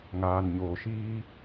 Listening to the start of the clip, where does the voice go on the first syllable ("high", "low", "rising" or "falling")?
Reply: low